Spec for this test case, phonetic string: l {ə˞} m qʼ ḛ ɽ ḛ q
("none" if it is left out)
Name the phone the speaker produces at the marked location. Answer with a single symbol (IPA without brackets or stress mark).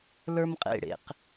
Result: ə˞